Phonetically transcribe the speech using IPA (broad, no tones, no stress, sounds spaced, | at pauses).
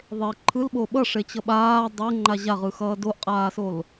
ðˤ e ǃʰ ɯ l ɓ o ɓ ʌ ʂ e t͡ɕ ʌ ɓ aː dˤ ɛ ŋ͡ǃ a ʑ a ʁ ɯ x ʌː d o ʔ qʼ aː s o l